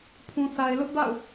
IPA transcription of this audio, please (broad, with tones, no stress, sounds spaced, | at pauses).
pʰ ũ˨ θ a˨ ɪ̯ l ʊ˦ ʔ b a̰˦˨ ʊ̯